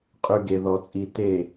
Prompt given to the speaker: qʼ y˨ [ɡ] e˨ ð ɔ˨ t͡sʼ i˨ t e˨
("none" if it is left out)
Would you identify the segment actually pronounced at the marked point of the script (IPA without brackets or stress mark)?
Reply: ɡ